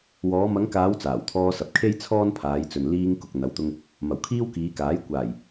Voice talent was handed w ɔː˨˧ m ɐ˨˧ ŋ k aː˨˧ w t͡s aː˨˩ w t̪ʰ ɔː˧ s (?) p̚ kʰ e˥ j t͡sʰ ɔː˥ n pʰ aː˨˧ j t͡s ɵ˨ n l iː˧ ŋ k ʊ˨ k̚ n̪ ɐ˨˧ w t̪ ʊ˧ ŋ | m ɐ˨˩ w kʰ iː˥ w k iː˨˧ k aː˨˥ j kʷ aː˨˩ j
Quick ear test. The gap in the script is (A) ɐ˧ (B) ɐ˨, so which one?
B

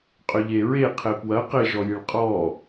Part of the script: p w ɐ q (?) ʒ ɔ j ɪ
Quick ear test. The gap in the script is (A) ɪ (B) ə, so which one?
A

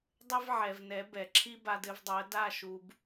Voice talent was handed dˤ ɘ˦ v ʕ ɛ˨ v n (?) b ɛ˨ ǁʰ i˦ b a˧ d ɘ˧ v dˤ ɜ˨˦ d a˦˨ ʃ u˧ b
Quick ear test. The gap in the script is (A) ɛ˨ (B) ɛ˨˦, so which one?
B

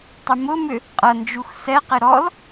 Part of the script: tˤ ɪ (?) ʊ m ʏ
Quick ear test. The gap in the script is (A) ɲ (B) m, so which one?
B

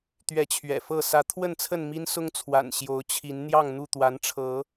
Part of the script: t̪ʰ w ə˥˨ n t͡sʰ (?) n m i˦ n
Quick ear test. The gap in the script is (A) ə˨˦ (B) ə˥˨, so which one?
B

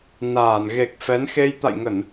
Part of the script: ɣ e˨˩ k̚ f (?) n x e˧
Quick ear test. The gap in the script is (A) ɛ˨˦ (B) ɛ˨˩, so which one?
A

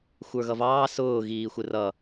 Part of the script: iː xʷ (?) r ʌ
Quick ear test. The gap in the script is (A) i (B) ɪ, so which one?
B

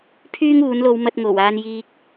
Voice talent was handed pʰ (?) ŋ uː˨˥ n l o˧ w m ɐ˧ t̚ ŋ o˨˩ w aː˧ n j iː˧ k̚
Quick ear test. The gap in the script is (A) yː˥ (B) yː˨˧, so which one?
A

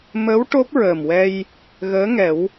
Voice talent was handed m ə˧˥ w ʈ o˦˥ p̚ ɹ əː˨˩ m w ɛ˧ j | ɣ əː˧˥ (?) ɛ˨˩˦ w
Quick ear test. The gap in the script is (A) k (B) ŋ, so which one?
B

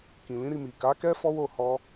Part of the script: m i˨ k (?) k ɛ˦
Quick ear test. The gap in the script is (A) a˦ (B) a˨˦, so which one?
B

